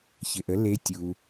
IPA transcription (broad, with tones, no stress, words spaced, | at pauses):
çɪ˩ʔə˩˥ le˧˥ tʲu˩